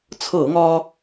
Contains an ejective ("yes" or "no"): no